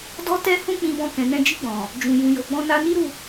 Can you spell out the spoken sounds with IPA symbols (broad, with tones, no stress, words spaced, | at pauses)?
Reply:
dɔ˦tɛ˦hũ˦ k͡pĩ˧bɔ̃˧kɛ̃˨nɛ̃˧ d͡ʒi˧ɡ͡bɔ̃˨ | d͡ʒũ˨jũ˨jo˨ɡ͡bɔ̃˧ na˧ni˦ ɾu˦˨